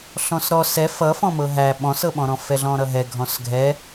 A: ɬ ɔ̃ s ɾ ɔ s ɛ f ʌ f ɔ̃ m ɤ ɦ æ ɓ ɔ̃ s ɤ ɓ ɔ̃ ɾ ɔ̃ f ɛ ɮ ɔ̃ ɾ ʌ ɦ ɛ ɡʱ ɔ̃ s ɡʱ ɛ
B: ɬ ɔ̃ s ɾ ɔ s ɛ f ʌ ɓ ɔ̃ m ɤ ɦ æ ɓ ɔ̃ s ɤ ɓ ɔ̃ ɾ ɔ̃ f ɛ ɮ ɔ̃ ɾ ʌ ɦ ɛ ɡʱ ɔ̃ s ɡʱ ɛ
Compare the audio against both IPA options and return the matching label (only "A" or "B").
A